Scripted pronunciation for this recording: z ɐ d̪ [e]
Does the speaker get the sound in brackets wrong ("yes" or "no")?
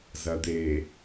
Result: no